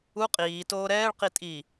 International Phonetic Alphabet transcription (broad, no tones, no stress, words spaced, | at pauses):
u qʼiː toːɾɛːɭ qitʼi